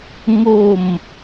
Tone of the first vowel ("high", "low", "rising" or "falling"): falling